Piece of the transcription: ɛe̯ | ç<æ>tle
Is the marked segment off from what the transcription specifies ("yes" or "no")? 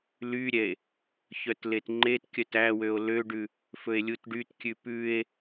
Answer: yes